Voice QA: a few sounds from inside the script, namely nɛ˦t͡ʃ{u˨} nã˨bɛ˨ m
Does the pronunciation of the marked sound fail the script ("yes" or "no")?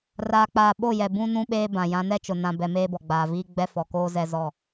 yes